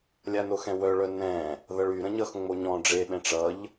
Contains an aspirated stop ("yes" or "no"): no